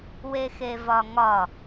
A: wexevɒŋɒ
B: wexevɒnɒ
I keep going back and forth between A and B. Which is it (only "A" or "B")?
A